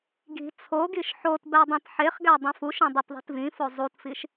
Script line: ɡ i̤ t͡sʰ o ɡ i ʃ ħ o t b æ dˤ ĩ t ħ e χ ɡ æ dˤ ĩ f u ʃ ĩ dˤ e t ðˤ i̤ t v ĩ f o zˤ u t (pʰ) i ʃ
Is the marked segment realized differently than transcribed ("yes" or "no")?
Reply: yes